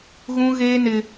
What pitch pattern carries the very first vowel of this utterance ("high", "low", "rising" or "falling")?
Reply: high